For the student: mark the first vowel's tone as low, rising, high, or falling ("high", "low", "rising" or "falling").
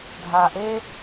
low